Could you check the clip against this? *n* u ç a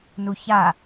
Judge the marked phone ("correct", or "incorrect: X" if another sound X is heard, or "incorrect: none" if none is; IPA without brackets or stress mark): correct